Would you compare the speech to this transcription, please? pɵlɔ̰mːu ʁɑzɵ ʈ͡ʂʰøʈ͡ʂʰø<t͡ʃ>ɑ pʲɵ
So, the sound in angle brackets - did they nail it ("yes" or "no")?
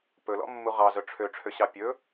no